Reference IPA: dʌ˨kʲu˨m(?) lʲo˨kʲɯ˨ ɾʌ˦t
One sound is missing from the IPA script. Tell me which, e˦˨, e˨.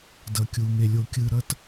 e˨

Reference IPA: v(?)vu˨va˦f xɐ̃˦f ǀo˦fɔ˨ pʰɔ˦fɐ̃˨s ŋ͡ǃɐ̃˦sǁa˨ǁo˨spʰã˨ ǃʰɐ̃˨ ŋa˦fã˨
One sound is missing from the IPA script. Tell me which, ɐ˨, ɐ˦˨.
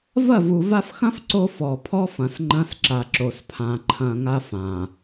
ɐ˦˨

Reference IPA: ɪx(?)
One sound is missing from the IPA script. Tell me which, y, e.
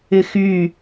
y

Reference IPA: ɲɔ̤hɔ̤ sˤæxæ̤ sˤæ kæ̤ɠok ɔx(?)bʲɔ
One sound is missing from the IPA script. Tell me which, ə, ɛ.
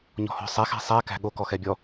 ɛ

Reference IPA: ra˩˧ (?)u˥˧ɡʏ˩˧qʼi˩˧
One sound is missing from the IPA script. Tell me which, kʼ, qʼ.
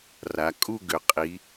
kʼ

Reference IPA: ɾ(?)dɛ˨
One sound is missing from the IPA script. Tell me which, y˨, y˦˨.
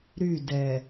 y˦˨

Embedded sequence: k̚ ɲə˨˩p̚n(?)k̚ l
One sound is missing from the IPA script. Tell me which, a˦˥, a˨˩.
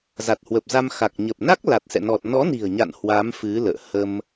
a˦˥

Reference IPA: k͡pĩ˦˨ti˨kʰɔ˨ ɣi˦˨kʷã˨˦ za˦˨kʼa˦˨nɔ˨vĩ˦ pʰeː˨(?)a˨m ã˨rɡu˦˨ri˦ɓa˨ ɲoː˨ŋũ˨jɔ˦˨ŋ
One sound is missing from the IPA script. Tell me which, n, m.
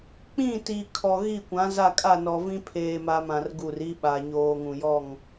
m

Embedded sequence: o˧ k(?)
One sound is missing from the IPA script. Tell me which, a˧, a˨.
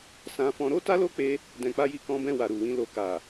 a˨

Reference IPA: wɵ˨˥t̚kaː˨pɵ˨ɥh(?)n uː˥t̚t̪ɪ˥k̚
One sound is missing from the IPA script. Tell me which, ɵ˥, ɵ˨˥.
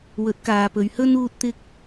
ɵ˥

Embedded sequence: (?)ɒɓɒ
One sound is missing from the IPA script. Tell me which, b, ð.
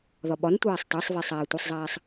ð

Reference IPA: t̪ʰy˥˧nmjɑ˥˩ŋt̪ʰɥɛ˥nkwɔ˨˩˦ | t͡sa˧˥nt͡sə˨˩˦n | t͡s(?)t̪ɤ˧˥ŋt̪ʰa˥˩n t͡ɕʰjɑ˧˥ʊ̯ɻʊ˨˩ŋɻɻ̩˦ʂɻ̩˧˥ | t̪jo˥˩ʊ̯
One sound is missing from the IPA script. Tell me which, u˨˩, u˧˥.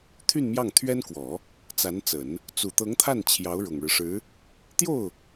u˨˩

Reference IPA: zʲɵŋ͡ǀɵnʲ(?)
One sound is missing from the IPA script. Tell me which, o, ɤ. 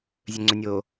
o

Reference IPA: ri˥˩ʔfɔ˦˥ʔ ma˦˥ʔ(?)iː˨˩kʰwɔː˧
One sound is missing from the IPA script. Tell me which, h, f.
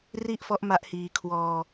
h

